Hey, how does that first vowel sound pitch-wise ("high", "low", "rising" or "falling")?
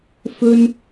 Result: high